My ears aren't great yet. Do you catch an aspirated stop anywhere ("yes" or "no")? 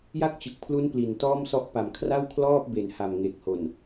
yes